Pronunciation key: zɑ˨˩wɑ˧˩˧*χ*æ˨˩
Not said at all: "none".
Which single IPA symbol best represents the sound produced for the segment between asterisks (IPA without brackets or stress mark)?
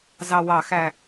x